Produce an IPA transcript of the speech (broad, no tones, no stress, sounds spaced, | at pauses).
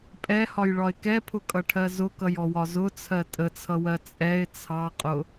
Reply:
pʼ ɛ h ɒ j ɭ ɒ ɪ̯ k ɛ pʰ ʊ kʼ ʌ ʈʰ ɜ z ʊ k ʌ j ɔ w ɒ z ʊ t͡sʰ ɜ tʼ ə t͡sʰ ʌ w ɜ t͡sʼ ɛ ɪ̯ t͡sʰ ɑ qʼ ʊ